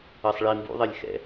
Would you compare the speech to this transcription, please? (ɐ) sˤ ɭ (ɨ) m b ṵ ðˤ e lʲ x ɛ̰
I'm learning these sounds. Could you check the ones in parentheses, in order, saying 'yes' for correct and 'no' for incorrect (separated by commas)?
yes, no